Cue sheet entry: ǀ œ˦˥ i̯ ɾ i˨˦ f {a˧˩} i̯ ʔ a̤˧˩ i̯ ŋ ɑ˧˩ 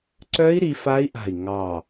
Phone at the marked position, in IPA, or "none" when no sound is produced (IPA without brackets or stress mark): a˦˥